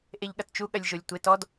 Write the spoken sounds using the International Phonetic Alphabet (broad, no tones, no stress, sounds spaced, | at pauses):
ʔ e ʎ ɠ ɐ t t͡ʃ u ɠ ɐ lʲ ʒ o lʲ tʷ e t ɔ d